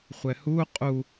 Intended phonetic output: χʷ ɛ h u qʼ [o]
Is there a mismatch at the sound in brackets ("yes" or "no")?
yes